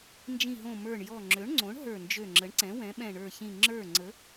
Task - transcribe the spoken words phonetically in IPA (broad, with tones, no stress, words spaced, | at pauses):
nd͡ʒĩ˧˩ɦõ˧˩ mə˞˧˩ɳjɔ˧˩ ŋ͡ǁø˩˥ɳŋ͡ǀõ˩˥ɳ ɦə˞˧˩nd͡ʒø˧˩ŋ͡ǁə˩˥ɳǀɛ̃˩˥ wɛ̃˩˥ɓɛ̃˧˩ɳə˞˧˩çĩ˧˩ ŋ͡ǁə˞˧˩ ŋ͡ǀə˩˥